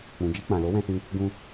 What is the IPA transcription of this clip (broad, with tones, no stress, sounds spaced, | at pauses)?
k͡p ũ˨ d͡ʒ i˧ k͡p ã˨ l o˨˦ w ɛ̃˧ s ĩ˧ | ɡ ũ˧